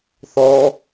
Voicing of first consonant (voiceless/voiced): voiceless